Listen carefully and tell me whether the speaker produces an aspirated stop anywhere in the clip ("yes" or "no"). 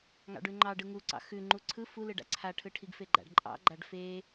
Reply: yes